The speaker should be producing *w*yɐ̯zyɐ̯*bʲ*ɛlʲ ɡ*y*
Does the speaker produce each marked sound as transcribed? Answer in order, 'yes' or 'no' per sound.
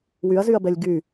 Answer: yes, no, yes

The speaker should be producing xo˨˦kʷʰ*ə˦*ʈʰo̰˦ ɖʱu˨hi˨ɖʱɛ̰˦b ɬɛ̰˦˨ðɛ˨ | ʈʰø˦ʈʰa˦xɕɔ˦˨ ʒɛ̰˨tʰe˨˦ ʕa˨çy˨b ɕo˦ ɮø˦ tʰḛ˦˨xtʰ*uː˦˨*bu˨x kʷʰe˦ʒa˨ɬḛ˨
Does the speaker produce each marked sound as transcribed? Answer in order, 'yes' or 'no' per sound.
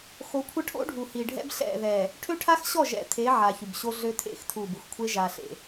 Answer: yes, no

